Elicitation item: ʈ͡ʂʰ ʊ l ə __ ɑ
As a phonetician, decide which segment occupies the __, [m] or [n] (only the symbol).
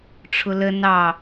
n